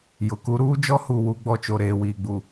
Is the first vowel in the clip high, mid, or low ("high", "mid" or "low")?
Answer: high